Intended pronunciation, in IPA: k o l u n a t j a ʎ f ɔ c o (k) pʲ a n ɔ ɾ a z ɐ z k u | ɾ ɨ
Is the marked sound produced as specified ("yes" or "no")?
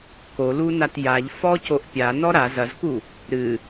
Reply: no